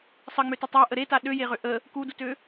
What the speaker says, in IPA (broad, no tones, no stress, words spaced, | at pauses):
sˤəŋ͡møtə tˤaʔə ɾeta ɗøjeʁø ʔə | kudutø